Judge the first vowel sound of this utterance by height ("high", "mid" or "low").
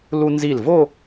high